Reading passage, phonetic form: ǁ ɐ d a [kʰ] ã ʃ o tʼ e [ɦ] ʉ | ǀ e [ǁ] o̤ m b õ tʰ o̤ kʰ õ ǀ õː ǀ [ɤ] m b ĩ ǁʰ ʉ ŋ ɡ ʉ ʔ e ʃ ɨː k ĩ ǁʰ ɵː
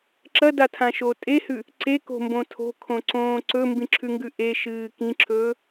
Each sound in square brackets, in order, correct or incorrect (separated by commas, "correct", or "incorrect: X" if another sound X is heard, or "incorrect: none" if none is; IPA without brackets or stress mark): incorrect: tʰ, incorrect: h, incorrect: k, incorrect: ɵ